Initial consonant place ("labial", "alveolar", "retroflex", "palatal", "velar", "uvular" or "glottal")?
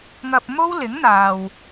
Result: velar